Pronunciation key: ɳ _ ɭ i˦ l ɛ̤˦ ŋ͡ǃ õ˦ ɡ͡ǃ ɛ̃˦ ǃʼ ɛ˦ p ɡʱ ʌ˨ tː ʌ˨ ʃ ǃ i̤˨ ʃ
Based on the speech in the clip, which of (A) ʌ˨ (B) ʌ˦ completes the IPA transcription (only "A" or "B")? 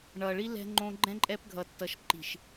A